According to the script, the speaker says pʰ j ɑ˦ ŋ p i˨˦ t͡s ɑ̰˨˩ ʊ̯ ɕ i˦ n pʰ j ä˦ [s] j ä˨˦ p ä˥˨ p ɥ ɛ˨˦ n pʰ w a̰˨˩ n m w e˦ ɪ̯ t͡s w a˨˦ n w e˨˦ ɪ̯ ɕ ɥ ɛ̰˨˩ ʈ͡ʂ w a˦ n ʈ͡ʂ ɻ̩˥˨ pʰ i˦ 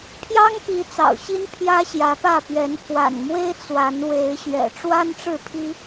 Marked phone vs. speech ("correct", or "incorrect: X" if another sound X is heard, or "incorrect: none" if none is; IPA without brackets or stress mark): incorrect: ɕ